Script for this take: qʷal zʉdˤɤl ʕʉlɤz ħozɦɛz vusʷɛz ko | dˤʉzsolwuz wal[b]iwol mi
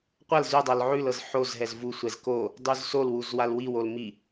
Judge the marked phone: incorrect: w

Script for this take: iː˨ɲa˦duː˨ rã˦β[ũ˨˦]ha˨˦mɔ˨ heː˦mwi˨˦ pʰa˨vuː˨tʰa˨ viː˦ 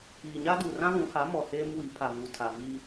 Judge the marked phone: correct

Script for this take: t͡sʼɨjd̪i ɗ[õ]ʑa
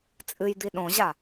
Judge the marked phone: correct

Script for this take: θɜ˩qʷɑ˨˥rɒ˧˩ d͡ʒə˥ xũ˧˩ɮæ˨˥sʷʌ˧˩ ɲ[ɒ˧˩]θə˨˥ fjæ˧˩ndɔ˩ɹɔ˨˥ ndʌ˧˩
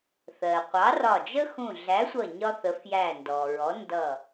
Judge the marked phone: incorrect: ɒ˥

